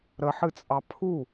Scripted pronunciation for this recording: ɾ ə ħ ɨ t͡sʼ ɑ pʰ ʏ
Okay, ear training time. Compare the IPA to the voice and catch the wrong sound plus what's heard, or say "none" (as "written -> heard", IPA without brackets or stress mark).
ʏ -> u